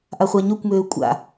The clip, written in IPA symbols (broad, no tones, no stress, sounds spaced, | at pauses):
ʔ a χʷ a ɲ ø kʷ m øː kʷʼ a̰